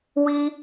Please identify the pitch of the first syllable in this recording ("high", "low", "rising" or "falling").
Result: high